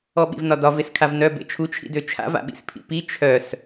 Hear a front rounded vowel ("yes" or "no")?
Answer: yes